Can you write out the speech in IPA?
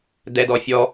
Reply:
d̪ɛdɔfʲɔ

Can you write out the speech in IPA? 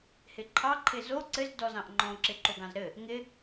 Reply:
hɪǃʰɑ ǃʰɪzo ǀɘz dɔzɑ̃ʔŋ͡ǃɔ̃ ǁɪǃoɡɑ̃zɾɘ | ŋɪ

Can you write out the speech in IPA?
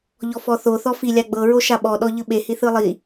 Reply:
ʎɔfɔθo θɔfi lʲaɡ͡bɤ ɹoʃaɓɔ ɗɔʎɯɓe hiθɯlˠi

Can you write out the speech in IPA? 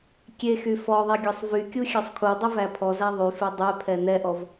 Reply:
kʲexy fɔðˤe ɡʲɔsˤvykʲu xʲɛsˤkʰudˤy væpʰɔzæ ðˤyfe dˤɛpʰɛ nɛʔɔv

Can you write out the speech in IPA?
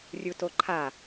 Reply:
rʲutoǃʰa

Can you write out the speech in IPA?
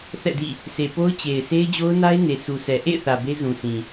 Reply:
θɛ̰˦˨dḭ˦˨ | se˨po˦ʊ̯t͡ɕe˨ɪ̯ se˦ɪ̯d͡ʑo˦ʊ̯na˦ɪ̯ ne˨su˨sʰɛ˨ ʔḛ˦˨ɪ̯θä˨ be˦zũ˨sʰĩ˨

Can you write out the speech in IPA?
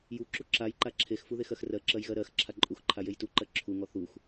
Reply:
ju ǁuǁaj ǃaǁʰexfu ðexɜxrɜǁɜj ɣɜɾɜx ǁʰaǃʼuxǃʰa jejtuǃɜ ǁʰuŋɔ θux

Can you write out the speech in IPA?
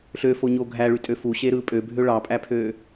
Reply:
ɬøfoɲo ɡʱæɭytʼø fuɕeɾɯ pʼøbʱø ɭɑpʼæpʰø

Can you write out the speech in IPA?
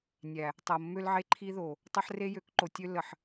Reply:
nʲæ˨ | tˤɤ˨ mːø˦lʕe˦ǃʰi˦ðo˨ | tˤɤ˦ħre˦jø˨˦kǃo˨ tʲø˦lːə˨ħ

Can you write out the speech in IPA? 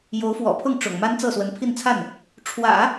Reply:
jo˧˥ʊ̯fwɔ̰˨˩pʰʊ˥˩ŋ ʈ͡ʂʊ̰˨˩ŋ ma˥nt͡sɤ˥˩swə˧˥n pʰi˥˧nt͡sʰa˥˩n | ʈ͡ʂʰwä̰˨˩˦

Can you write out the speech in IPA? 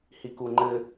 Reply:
hikuŋ͡ǃɘ

